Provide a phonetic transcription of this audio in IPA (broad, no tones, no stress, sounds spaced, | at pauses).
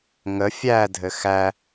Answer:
ŋ ə fʲ æ dʱ ɘ x æ